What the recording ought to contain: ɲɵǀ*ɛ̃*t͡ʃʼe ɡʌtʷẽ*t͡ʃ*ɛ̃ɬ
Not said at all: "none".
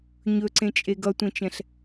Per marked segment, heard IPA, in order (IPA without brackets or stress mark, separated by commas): ẽ, t͡ʃ